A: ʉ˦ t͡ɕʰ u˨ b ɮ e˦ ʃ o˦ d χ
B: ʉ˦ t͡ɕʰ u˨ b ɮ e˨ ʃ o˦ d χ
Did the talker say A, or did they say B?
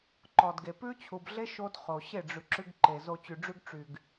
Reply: A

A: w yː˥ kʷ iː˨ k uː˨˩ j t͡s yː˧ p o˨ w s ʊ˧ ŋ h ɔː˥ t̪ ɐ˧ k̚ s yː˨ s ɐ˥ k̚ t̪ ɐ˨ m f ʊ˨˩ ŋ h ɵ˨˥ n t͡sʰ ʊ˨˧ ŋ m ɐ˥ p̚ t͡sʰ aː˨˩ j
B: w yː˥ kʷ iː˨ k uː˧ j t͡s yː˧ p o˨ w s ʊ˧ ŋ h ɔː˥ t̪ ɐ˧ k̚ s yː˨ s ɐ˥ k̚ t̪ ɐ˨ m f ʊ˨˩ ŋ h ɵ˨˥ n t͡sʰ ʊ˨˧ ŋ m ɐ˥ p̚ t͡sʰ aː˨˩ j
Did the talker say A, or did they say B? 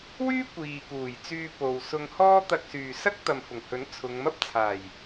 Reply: A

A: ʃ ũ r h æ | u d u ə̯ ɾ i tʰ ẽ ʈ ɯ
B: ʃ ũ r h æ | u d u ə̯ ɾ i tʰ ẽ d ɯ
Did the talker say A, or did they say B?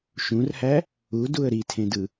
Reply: B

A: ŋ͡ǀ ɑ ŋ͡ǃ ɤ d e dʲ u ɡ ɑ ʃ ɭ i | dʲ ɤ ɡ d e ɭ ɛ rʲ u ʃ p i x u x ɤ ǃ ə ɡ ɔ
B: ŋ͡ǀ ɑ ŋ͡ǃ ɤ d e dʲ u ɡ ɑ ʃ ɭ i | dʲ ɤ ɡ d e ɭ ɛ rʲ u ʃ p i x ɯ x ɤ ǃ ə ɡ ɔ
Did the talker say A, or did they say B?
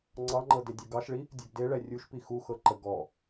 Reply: A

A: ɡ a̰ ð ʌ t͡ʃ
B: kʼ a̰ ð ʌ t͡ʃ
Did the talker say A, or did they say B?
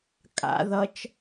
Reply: B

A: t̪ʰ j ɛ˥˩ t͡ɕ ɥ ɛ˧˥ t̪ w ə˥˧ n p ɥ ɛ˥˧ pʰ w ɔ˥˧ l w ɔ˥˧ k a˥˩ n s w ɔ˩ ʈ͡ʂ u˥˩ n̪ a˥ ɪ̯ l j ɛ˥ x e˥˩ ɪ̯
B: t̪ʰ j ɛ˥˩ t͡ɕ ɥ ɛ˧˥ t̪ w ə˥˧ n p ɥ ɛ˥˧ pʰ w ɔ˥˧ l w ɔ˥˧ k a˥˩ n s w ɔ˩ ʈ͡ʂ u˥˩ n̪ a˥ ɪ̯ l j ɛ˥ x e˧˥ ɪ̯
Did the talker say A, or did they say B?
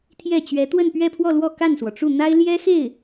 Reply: A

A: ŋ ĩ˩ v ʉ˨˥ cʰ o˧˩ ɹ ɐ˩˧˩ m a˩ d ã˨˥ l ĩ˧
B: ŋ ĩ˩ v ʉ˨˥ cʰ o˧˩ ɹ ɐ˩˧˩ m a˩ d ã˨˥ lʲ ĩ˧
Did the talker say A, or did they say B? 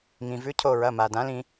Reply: A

